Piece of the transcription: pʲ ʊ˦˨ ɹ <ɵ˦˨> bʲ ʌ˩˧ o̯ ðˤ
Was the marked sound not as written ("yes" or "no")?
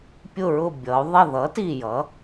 yes